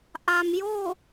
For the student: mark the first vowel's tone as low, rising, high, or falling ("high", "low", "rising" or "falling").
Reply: low